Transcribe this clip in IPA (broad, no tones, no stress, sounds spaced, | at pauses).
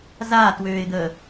z aː t w øː ɪ̯ d̪ əː